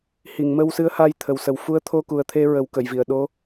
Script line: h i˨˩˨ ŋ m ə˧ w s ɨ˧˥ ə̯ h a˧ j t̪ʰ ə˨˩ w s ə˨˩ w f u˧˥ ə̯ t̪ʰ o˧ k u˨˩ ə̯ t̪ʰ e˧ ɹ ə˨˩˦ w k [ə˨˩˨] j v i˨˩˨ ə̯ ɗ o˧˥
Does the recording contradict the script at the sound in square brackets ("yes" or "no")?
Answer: no